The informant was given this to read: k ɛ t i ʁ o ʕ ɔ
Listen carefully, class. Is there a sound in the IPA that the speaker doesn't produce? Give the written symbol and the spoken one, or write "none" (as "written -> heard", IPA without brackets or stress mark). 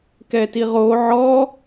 none